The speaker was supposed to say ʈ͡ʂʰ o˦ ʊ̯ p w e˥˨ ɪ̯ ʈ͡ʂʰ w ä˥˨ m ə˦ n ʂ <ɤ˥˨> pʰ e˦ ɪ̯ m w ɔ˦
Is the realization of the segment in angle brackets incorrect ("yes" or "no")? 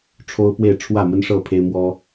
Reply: no